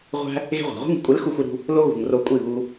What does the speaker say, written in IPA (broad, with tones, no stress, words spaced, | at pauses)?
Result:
ʁʷæ̤˧ | ɣe̤˦ʁʷæ̤˨ ʁʷi̤˧ŋṳ˨kʷʼe˨˦l xu˧xʷi˧ɾṳ˧ | lo˦ ɣṳ˨ŋro˧kʷʼi˦˨ βu˧